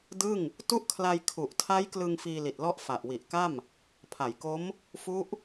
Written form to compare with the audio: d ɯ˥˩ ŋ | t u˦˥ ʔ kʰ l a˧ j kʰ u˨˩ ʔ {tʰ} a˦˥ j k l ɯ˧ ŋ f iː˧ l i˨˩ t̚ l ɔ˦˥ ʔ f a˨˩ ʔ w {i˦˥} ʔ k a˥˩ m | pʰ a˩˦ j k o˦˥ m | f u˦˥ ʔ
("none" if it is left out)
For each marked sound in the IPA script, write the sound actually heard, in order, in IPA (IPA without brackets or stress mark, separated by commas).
tʰ, i˨˩